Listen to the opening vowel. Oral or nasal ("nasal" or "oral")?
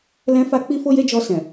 nasal